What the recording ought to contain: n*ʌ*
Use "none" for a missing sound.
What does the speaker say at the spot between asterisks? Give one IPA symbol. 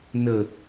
ə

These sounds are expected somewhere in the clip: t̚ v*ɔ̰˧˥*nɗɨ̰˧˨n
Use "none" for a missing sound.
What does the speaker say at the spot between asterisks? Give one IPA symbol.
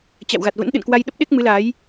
ə̰˧˥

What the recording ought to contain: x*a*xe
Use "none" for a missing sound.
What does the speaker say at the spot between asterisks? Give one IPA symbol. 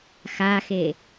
a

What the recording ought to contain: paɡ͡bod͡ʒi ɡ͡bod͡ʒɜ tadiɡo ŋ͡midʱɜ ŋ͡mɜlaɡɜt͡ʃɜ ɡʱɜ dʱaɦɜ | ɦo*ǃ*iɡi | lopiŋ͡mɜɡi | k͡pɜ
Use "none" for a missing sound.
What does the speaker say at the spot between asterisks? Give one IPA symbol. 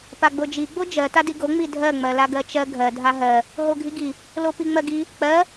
ɡʱ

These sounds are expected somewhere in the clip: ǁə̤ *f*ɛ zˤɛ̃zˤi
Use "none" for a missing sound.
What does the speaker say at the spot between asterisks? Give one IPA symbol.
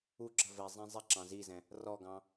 v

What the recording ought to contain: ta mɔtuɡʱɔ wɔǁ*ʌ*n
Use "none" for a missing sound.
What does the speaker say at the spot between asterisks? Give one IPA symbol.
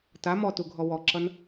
ʌ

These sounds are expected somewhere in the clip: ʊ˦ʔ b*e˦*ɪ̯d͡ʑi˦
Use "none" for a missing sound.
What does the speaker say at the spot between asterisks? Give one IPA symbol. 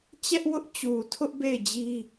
e˦˨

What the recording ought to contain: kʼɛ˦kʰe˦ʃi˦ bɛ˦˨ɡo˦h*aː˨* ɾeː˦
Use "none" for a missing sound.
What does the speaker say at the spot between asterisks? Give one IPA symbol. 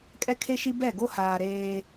aː˨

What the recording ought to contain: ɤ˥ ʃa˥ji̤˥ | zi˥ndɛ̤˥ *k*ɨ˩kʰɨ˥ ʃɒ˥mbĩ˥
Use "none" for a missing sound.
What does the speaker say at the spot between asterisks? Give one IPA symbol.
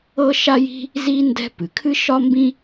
p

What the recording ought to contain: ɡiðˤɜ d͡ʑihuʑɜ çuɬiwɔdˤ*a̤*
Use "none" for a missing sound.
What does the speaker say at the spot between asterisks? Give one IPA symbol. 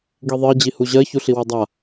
a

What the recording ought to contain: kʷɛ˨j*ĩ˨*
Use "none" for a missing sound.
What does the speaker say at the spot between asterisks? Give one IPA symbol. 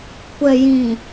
ĩ˨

